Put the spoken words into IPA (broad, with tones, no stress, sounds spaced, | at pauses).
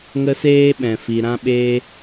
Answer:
ŋ ə˦ s eː˦ ɓ ɛ̃˨ f i˨ ɾ ã˦ ɓ eː˦